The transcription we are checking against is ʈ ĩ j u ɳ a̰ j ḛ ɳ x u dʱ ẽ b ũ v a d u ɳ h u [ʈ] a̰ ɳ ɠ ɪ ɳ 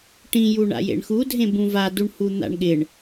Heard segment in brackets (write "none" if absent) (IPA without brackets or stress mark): n̪